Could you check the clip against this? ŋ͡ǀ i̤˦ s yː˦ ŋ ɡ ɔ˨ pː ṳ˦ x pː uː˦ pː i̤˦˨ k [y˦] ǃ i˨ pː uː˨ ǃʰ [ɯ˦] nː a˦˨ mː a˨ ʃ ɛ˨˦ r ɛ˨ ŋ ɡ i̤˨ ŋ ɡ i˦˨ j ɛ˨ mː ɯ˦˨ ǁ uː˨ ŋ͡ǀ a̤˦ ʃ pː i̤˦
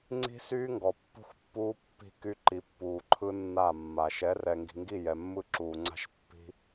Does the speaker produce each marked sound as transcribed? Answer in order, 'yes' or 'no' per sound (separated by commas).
yes, yes